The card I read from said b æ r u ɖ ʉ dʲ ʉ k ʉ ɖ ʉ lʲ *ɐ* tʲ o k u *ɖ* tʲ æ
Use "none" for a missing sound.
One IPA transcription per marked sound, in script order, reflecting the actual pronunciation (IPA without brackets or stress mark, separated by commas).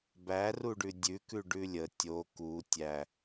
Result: ə, none